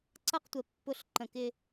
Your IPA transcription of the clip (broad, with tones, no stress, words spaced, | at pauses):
ǀʌ˦˨qtʷə˨ pːʊ˦˨ɬǃə̃˨kɪ˦